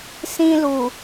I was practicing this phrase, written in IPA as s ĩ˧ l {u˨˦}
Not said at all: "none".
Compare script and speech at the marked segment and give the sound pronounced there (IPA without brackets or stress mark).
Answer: u˨